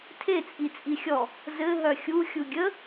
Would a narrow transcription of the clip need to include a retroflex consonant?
no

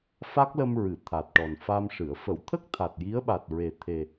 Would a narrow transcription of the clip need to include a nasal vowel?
no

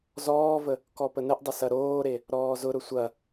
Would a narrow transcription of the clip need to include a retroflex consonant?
no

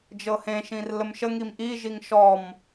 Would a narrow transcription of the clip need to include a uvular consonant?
no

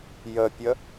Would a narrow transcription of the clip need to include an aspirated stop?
no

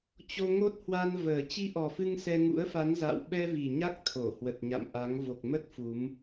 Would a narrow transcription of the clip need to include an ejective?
no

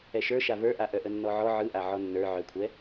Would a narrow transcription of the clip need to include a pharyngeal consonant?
yes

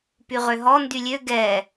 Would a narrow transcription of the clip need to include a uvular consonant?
yes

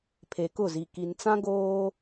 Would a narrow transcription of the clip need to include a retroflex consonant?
no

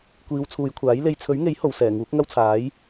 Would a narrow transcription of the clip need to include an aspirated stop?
yes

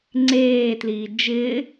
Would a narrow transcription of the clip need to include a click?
yes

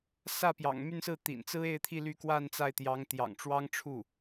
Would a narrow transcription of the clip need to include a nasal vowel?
no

